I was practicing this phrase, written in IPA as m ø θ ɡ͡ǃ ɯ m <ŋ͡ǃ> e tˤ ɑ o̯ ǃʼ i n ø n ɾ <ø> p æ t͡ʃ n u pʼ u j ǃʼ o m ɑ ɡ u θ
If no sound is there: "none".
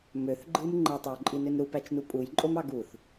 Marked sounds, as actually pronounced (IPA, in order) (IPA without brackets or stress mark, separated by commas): ŋ͡ǃ, u